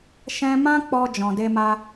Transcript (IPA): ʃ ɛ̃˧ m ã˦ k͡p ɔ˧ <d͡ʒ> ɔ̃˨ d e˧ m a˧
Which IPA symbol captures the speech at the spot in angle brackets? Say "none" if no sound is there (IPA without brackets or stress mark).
d͡ʒ